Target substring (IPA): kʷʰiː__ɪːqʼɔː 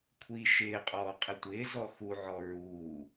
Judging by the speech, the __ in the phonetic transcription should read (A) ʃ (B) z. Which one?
A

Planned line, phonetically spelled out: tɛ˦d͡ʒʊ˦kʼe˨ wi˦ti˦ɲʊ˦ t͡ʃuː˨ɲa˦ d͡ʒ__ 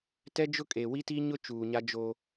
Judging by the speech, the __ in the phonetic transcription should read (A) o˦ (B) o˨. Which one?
A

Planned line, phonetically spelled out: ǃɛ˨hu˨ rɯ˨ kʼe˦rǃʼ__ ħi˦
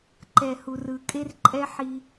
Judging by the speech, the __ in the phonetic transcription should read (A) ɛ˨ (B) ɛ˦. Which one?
B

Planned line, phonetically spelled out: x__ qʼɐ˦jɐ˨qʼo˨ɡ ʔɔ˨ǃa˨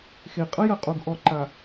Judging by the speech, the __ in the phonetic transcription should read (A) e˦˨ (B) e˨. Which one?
B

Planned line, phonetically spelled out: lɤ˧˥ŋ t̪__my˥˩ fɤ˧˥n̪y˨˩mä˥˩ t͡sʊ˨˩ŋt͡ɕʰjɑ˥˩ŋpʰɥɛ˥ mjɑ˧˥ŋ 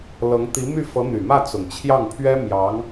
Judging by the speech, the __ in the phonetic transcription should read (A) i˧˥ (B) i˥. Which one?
A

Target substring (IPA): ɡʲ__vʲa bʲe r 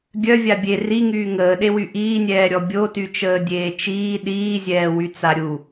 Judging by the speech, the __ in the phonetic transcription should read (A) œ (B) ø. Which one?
A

